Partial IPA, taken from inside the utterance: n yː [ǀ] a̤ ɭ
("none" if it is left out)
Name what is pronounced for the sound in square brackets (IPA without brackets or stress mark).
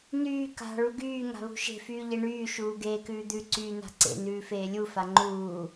k